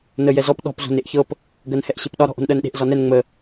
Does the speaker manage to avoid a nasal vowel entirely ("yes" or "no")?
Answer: yes